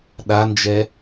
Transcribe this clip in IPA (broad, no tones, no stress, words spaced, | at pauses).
ɗand͡ʒɛ